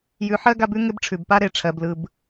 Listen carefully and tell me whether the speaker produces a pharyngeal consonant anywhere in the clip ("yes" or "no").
yes